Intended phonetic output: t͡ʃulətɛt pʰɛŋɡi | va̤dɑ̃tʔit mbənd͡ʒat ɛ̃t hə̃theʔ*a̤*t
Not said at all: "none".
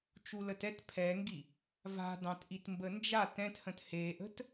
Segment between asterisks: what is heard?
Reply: ə̤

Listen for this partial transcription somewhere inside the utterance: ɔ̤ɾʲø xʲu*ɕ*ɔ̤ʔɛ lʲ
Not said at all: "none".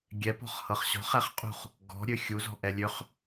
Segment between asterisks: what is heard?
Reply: z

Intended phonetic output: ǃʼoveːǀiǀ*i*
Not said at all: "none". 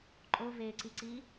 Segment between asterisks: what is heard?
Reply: i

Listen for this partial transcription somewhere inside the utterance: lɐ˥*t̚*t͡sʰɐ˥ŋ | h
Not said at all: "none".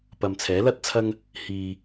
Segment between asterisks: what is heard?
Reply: t̚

